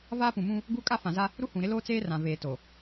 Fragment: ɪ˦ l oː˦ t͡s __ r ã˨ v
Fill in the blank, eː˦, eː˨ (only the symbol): eː˦